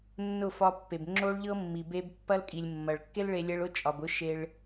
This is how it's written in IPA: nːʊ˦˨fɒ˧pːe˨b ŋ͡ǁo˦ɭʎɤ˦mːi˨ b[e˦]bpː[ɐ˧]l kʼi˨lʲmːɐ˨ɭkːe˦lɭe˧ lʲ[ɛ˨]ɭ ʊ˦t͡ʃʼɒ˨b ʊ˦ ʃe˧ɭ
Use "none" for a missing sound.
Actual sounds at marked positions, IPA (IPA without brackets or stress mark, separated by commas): e˧, ɐ˦, ɛ˦